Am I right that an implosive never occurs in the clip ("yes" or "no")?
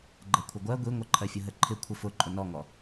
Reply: yes